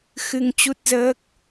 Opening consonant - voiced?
no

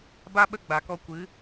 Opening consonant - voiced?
yes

